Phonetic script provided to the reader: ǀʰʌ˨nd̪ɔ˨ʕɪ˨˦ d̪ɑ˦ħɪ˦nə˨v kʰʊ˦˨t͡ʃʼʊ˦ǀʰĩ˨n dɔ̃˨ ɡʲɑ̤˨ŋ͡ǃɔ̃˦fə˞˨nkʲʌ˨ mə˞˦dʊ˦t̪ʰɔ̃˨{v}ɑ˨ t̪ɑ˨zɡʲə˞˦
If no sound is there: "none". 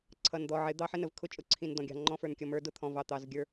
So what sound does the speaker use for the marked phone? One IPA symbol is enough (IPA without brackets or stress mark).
v